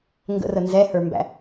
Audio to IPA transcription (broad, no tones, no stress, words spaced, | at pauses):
ŋɡə̰rə nzɛhə˞mbæ̰